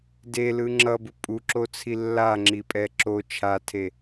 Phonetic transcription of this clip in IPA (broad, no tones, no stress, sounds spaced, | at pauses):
d e l ɯ ŋ͡ǁ ʌ b u pʼ u ǁ o t͡sʰ i lː a ŋ͡ǁ i pʼ ɛ ǁ o t͡ʃʰ a tʰ e